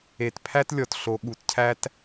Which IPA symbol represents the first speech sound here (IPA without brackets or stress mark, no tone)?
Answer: e